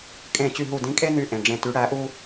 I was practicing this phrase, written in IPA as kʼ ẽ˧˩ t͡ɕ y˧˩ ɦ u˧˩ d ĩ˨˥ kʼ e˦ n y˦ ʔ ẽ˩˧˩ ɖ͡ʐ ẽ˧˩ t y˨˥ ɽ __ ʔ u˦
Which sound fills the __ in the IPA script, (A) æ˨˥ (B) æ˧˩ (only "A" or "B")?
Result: A